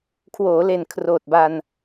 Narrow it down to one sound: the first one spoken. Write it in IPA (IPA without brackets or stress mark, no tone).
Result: kʰ